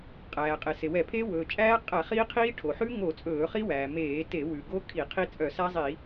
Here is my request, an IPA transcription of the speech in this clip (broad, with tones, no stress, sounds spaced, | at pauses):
qʼ æː˩ qʼ e˩ s e˩ w ɛ˧˩˧ pʰ eː˦˥ w ɵː˩ t͡ʃʼ æː˦˥ qʼ æ˧˩˧ χ iː˦˥ qʰ iː˦˥ ʈʰ o˩ ħ ʉ˦˥ ŋ o˧˩˧ t͡sʼ ɵː˧˩˧ χ i˦˥ w æː˩ m eː˧˩˧ t e˧˩˧ w ʉ˩ ɡ o˦˥ kʰ i˧˩˧ qʰ i˦˥ t͡sʼ œ˧˩˧ s æ˦˥ zˤ i˧˩˧